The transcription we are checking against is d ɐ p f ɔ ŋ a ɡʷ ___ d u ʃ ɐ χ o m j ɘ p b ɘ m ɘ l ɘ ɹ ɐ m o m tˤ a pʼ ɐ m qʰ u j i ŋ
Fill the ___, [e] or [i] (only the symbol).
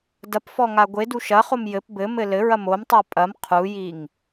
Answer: e